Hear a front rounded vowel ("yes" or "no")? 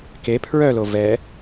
yes